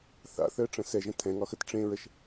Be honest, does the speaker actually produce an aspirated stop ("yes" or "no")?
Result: yes